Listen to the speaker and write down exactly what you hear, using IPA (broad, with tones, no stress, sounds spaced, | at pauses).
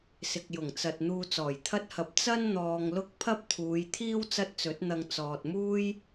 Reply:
s ɪ˨ k̚ j ʊ˨˩ ŋ t͡s ɐ˨ t̚ n̪ uː˧ t͡s ɔː˨˩ j t̪ʰ ɐ˥ t̚ h ɐ˧ p̚ t͡s ɐ˥ n n̪ ɔː˧ ŋ l ʊ˥ k̚ pʰ ɐ˥ p̚ t̪ʰ uː˨˧ j t̪ʰ iː˥ w t͡s ɐ˥ t̚ t͡s ɵ˨˥ t̚ n̪ ɐ˧ ŋ t͡s ɔː˨ t̚ m uː˥ j